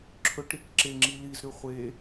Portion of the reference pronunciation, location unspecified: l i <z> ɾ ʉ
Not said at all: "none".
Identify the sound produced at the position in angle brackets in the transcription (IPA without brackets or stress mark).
z